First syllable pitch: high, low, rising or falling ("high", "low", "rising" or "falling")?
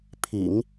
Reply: low